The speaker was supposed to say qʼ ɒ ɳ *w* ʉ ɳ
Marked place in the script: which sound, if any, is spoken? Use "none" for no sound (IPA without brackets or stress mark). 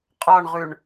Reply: ʁ